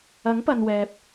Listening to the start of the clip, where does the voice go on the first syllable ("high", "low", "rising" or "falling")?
rising